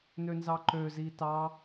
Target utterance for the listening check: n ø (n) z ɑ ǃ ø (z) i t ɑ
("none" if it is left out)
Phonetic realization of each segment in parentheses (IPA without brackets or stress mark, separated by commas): n, z